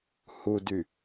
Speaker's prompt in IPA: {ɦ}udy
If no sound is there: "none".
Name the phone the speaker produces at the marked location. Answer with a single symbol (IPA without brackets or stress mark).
h